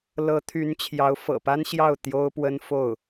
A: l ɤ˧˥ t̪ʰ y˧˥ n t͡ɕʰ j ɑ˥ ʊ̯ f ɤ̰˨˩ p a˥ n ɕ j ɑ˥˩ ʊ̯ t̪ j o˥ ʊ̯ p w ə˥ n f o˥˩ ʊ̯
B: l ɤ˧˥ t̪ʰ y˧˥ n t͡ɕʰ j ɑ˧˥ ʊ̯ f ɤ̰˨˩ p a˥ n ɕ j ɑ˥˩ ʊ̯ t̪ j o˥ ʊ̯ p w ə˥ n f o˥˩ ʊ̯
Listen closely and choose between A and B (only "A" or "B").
B